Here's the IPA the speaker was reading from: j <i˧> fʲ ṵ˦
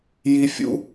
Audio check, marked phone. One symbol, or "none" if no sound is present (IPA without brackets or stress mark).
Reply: i˧